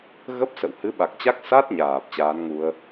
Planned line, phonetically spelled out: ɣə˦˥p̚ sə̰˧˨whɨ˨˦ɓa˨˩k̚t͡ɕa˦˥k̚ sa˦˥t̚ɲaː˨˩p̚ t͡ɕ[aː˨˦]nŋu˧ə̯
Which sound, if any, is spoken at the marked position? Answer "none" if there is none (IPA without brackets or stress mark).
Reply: aː˨˦